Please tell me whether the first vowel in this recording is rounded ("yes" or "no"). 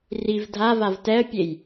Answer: no